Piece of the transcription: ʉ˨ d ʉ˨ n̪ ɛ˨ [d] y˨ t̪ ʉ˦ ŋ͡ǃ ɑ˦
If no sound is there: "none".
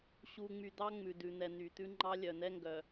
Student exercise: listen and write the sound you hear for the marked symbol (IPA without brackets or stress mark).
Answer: n̪